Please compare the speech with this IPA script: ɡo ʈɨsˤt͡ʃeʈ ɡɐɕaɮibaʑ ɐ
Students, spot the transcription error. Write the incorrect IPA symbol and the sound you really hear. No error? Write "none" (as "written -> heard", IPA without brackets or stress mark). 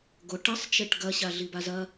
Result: ʑ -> z